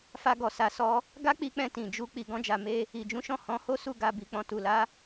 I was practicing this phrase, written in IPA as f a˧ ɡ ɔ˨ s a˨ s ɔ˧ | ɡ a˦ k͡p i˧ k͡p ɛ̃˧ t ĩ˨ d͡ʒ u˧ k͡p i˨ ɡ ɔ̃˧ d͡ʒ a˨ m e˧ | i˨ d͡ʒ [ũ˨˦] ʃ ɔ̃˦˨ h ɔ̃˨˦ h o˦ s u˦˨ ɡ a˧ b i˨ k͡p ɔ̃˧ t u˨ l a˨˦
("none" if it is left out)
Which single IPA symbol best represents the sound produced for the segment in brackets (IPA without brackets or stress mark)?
ũ˨˦